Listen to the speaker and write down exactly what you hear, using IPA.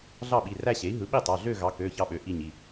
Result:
ɮ ɑ˥˧ ɓ i˩˧˩ r æ˥˧ ɕ e˩˥ i̯ ɦ ɯ˩˥ ɓ i˥˧ tˤ ɑ˩˧˩ ɮ ø˥˧ ɣ ɑ˩˥ k ø˩˧˩ ç ɑ˥˧ ɓ ø˩˥ ʔ i˥˧ ɲ i˩˧˩

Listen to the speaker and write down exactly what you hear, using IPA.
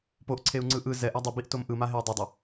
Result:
p o ʔ ǀʰ e u̯ ŋ͡ǀ ɯ ʔ ɯ z ɛ ʔ a dˤ ɯ b i ʔ t o m ʔ ɯ m a ɦ e i̯ dˤ i dˤ ʌ

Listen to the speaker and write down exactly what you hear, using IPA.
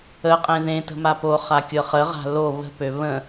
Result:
ə qʼ ẽ ð ẽ t ə̤ m a p o χ a kʲ ɤ χ ə ʁ a̤ l o β ə̤ p ø β ə̃

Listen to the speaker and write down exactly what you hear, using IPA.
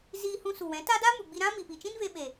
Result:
z iː˧ h ũ˧ s u˨ w ɛ̃˨˦ t a˦ d a˦ m u˨ ɡ͡b i˧ ɾ ã˦ m i˨ p i˨ t͡ʃ ĩ˦ n v e˧ ɓ e˨

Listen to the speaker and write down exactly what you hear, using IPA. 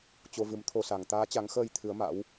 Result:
t͡ɕ o˧ v ɨ˨˦ m t̪ʰ o˧ s a˨˩ ŋ t̪ aː˨˦ t͡ɕ a˨˦ ŋ x əː˧ j t̪ʰ ɨ˨˦ ə̯ m a̰˧˥ w

